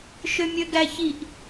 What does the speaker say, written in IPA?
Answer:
ʃømʲøɡæçiʔ

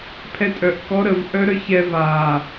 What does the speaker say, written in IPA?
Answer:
pʰɛtʼœʔkɔ ɾəvʔœ ɾœçɛ va

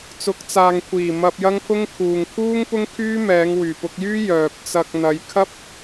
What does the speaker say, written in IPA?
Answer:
t͡sʊ˨˥k̚t͡saː˨ŋkʷʰiː˨˩ mɐ˧p̚jɐ˥ŋpʰʊ˥ŋ kʰuː˨ŋkʰuː˥ŋ pʊ˥ŋkʰyː˥mɛː˨˧ŋ wyː˨˩pʊ˧k̚jyː˥ jœː˨p̚t͡sɐ˧k̚ n̪ɐ˨˧jkʰɐ˥p̚

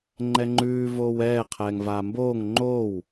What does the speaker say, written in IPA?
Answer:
ŋ͡ǃɛŋ͡ǃʉː voːwɛː qʰɛːŋvaːmboːŋ ŋ͡ǃow

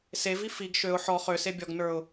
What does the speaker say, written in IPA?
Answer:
sevi fiɡ ʃøʊ̯ ħɔ χøse bʲɔɡnə˞ʊ̯

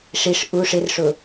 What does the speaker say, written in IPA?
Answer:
ʂiʂ ʔu ʂɪrʂʊ

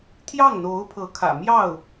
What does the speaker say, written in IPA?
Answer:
t̪ʰjɑ˥˩ŋn̪o˧˥ʊ̯pʰɤ˧˥ kʰä̰˨˩mjɑ˥˩ʊ̯

